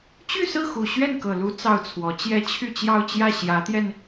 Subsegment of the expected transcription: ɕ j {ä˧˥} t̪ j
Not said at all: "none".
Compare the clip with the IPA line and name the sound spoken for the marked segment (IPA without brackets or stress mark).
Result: ä˧˥